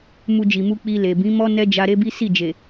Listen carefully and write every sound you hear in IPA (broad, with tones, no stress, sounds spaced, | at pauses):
m u˧ d͡ʒ i˨ m u˧ k͡p i˧ l e˨ b ĩ˨˦ m ɔ˦ n ɛ˦ d͡ʒ a˧ ɾ e˦ b i˦ s i˦˨ d͡ʒ e˨